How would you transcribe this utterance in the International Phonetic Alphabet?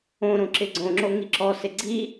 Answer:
õ ɾ õ ǁ ɪ ɡ͡ǀ õ ŋ͡ǁ o ŋ i ǁ ɔ s ɪ ɡ͡ǀ i

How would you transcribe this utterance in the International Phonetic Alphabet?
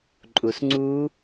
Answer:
ǃʼ u˨ s ŋ͡ǀ u˦˥

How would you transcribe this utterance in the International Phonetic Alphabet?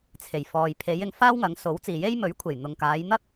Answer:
t͡sʰ e˨˩ j f ɔː˨ j pʰ e˨˧ j ɪ˧ ŋ f aː˥ w ŋ ɐ˨˧ ŋ s o˨˥ w t͡s iː˨ j e˥ j m ɵ˨˥ ɥ kʷʰ e˨˩ j n̪ ʊ˨ ŋ k aː˨˧ j n̪ ɐ˥ k̚

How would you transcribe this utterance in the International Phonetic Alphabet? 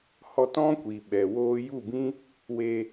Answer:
h ɔ˧ t ɔ̃˦ kʷ i˨ ɓ ɛ˨ w oː˧ j u˦˨ b ĩ˦ | w e˧

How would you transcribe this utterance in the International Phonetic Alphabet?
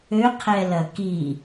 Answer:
ø qʰ ɛ l ɐ k i

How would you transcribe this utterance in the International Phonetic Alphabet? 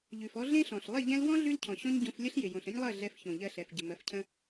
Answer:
ʎ ʉ˨ f ɔ˧ ɮ ẽ˦ ɬ ɔ̃˨ ɬ lˠ ɪ˦˨ ʎ ɛ̃˧ l w ɔ̃˦ ɮ ʉ˦ l cʰ ɔ̃˨ ɕ ɔ̃˦ ɲ ɟ õ˧ f lʲ ə˦ ɬ j ɪ˨ j õ˨ ɬ ə̃˦ ɲ lˠ ɜ˦˨ ɮ ɛ˧ f ç õ˨ ʎ ɜ˧ ɬ ɛ˨ f ɟ ə˨ m ɜ˨˦ f cʰ ə̃˦

